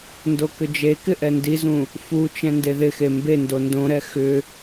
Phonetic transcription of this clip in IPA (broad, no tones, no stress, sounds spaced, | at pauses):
n d o k ʏ d͡ʒ e k ɪ ʔ ɛ n d i z ũ | f u t͡ʃ ɛ̃ n d e ð ɪ x e m b e n d o n d õ ɾ ɛ x ʏ